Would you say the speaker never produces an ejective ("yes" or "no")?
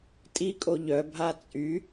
no